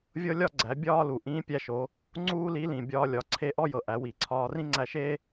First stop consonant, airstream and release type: click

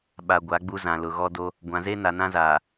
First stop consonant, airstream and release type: implosive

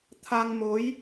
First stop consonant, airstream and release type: aspirated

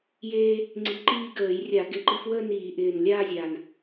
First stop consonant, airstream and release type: click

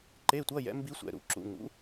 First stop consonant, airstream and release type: click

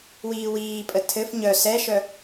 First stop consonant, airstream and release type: ejective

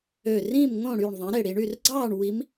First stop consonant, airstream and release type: click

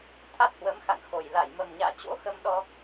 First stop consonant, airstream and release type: aspirated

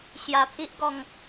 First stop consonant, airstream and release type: aspirated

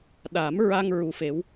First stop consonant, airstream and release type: implosive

